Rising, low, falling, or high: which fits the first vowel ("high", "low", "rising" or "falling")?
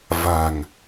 low